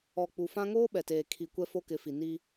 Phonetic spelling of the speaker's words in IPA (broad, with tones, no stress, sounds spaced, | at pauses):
ɔ˨ k͡p u˨ f ã˦ ŋ oː˦ ɓ ɛ˨ t eː˨ kʰ i˨ kʷ ɛ˦ f o˦ k ɪ˨˦ f i˨ n i˦